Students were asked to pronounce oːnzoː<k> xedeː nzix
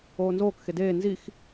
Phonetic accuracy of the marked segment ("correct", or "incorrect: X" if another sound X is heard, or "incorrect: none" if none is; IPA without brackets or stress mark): correct